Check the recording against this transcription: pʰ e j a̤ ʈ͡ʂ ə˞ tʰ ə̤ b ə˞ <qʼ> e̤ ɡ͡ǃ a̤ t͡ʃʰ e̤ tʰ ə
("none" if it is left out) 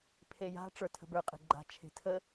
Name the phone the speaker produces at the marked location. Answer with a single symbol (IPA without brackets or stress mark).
qʼ